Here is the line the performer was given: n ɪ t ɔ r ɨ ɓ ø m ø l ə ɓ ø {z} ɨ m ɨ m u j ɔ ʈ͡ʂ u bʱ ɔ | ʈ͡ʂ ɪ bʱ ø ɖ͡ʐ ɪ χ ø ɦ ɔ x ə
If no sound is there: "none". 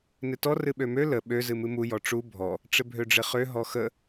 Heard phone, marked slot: z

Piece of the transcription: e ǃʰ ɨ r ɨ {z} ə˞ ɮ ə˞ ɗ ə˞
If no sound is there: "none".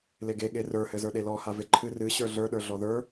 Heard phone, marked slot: ɕ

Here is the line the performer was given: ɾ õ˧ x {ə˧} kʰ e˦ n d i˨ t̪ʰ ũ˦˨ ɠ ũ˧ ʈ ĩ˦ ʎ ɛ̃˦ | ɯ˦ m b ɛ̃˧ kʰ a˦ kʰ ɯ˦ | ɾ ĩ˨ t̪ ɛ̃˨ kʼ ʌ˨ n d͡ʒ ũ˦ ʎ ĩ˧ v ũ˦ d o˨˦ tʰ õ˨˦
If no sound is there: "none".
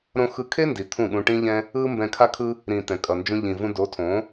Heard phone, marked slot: ɯ˧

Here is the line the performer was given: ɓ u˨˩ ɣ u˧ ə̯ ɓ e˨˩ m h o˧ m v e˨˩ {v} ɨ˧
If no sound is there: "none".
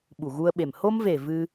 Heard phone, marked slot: v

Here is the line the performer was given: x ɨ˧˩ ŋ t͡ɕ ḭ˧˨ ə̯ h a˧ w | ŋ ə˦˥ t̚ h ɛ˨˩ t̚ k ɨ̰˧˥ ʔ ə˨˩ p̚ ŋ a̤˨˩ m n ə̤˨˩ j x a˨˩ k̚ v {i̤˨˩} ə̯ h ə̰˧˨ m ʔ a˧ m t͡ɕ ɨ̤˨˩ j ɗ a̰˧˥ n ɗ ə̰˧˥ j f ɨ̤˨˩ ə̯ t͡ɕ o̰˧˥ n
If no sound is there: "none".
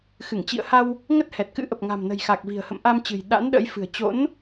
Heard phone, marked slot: i̤˨˩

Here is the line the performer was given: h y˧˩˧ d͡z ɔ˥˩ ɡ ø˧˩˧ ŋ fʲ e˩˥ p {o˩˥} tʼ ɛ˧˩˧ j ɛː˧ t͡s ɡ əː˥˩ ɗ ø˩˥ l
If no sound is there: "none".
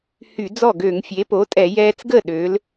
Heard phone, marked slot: o˩˥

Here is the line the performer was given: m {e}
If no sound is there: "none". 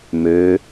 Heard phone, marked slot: ø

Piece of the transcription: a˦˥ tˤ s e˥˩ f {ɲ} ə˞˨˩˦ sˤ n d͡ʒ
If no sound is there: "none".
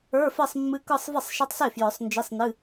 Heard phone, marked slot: j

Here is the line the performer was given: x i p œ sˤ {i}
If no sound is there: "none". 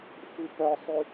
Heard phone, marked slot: y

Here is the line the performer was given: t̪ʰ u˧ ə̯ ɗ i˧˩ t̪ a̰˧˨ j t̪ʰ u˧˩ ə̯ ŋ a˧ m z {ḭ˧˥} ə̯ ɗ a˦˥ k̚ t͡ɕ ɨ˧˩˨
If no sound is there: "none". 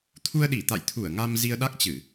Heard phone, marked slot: i˧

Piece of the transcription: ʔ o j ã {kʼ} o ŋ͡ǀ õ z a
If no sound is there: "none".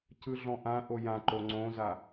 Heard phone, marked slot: ǃ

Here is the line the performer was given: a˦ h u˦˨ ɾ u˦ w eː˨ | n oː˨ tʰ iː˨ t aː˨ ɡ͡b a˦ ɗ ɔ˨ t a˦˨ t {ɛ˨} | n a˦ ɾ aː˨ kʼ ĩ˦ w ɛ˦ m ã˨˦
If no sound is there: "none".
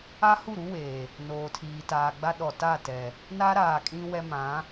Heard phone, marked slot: ɛ˨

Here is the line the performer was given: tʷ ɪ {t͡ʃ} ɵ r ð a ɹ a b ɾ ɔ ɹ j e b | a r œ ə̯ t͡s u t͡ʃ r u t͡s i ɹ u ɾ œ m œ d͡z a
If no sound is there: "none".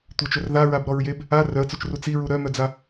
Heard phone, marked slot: t͡ʃ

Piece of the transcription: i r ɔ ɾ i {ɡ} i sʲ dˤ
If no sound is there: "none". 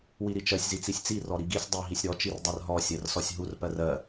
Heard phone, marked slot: ɡ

